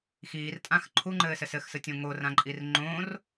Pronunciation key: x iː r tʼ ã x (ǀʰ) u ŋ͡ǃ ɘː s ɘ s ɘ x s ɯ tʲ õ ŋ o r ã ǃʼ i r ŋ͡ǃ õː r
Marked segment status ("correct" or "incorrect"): incorrect